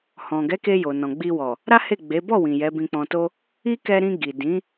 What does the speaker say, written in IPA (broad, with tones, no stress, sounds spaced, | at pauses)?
h ɔ̃˨ ɡ ɛ˨˦ k e˧ j o˨ n ɔ̃˨ ɡ͡b i˧ w ɔ˨ | ɾ a˦ h e˦˨ ɡ͡b e˨˦ b ɔ˦˨ w ĩ˨ j ɛ˨˦ b ĩ˧ k͡p ɔ̃˧ t o˦ | i˦ k ɛ˧ ɾ ĩ˧ ɡ i˨ d ĩ˨˦